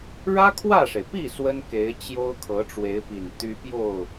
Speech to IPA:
ɻä˥kʰwä˥˩ʂe˩ɪ̯ pi˥˩ swə˥nke˧˥ɪ̯t͡ɕjo˥ʊ̯ kʰɤ˧˥ʈ͡ʂwe˧˥ɪ̯pi˨˩n t̪y˥pjo˥˩ʊ̯

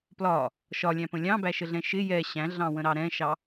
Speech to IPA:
plɒ | ʃɒlʲæ̃pə̃ lʲɑ̃bæʃəɮɛ̃ ʃɪ jɛ ɕæ̃ɮɑ̃wə̃ɾɑ ɾɛ̃ʃɑ

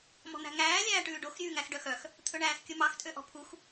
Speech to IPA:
mɔ̤n̪æ̤ŋæː lʲæːʈʉːɖox ɾʲʉːŋæxɖœxœx | t̪ʰɵɳæːxkʲɵmɑx tʼøʔɔ̤pʰux

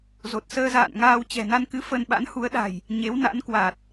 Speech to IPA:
zo˨˩t̚səː˧ za̰ː˧˨nŋaː˧w t͡ɕɛ̤˨˩na˧nkɨ˨˦ fə˧n ɓa̰˧˥nhu˨˦ə̯ɗa̤˨˩j | ɲe˨˦wna̰˧˥nkwa˨˩t̚

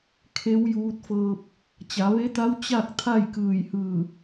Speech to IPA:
kʰe˧˥wjuː˧t̚fɤː˧p̚ | t͡ɕa˩˧ʋe˧˥t̪a˧˥w t͡ɕa˥˨k̚ t̪ʰa˥˨jkɯː˧˩jhɯː˧˩

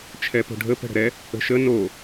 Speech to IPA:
t͡ʃʰɛpo̤ɖʱə pə̤ɽə̤ɾɛ | ə̤ʃə no

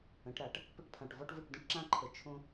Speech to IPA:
ə̃˨˩˦ʈɾa˨˩˦ʈ | pə˥ʈpʰã˨˩ʈvɔ˥ʈvɯ˥˩ʈ də̃˥ʈǁã˥ǃʰə˨˩ t͡ʃʰõ˧

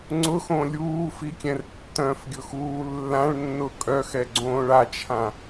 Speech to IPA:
ŋ͡ǀʊxõ lʲuːfikʲɛ̃r tːœ̃fɡʲʊxuː lːãɭnːʊ kʼœxɛɡ͡ǀõːɭ at͡ʃʰã

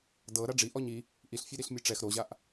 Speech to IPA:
dɤ ɾaɖ͡ʐi ʔɔɲi | ʔiɬfʲe ɾiɬmʲɯʈ͡ʂɛx ɾoʑaʔ

